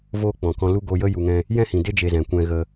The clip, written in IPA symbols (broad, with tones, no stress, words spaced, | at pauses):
voː˦k͡pɔ̃˨kɔ̃˧ lu˧ ɡoː˧jə˦ ju˧ŋɛ̃˦ | jɛ̃˦hĩ˨de˦ d͡ʒe˧zɛ̃˨ kʷɛ̃˧ɣə˧